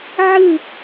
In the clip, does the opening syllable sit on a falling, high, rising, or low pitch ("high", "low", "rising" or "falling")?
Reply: falling